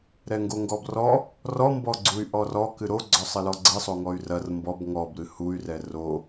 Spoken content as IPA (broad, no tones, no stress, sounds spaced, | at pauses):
ɾ ɛ ŋ ɡ o ŋ ɡ ɔ b r ɔ | r ɔ m b ɔ ɡ͡ǀ u y̯ ʔ ɔ r ɔ k ɨ ɾ o ɡ͡ǀ ɔ sˤ ɘ l ɔ ɡ͡ǀ ɘ sˤ o ŋ ɔ y̯ r ɐ r m b ɔ b ŋ ɔ b ɾ ɨ h u y̯ r ɛ r o